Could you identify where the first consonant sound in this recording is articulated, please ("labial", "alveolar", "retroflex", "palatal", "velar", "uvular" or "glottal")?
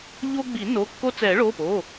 palatal